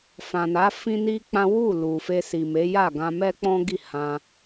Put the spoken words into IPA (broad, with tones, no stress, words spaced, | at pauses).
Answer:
fã˨na˨˦ fĩ˦ni˦k͡pã˦ wu˦˨lu˨fe˧ si˨me˨˦ja˦˨ɡã˧ mɛ˦k͡pɔ̃˦ɡi˦˨ hã˧